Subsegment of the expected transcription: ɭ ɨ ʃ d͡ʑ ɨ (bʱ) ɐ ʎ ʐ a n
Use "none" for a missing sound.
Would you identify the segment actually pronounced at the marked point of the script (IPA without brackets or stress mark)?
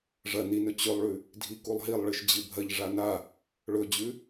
bʱ